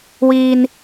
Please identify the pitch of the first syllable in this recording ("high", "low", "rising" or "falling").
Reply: high